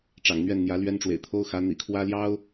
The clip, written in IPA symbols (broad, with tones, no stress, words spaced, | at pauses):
ʈ͡ʂɑ̰˨˩ŋn̪ɥɛ˥˩n n̪jä˧˥lɥɛ˥n ʈ͡ʂwḛ˨˩ɪ̯t̪ʰo˥ʊ̯xä˧˥ n̪ḭ˨˩kʰwä˥ljɑ˥ʊ̯